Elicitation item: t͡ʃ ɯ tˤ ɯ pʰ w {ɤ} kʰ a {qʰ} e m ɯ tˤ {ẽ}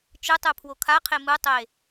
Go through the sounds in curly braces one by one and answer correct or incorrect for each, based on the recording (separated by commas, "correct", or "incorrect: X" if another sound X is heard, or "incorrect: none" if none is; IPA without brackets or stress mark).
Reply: incorrect: o, correct, incorrect: e